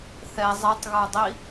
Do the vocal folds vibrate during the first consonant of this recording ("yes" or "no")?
no